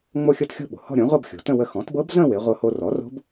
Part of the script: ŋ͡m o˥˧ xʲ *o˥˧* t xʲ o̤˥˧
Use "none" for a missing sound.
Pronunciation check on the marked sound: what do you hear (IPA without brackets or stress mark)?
ɤ˥˧